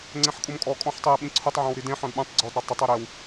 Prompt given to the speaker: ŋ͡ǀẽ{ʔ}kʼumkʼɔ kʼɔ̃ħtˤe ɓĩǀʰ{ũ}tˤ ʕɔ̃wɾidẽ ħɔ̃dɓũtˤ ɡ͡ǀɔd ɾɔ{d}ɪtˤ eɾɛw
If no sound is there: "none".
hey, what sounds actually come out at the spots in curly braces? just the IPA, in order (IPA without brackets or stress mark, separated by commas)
ħ, u, tˤ